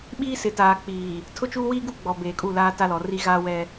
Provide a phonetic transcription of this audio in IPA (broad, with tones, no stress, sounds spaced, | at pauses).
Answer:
ɓ iː˦ s ɪ˨ t aː˨ k͡p iː˨ | tʰ ʊ˦ t͡ʃ uː˦ w iː˦ ɡ u˦ ɡ͡b ɔ˨ b eː˨ kʼ u˦˨ l aː˦ t a˦ l ɔ˨ r i˦ ɣ aː˦ w ɛ˦